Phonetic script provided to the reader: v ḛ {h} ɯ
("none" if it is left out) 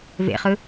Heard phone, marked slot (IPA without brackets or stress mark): χ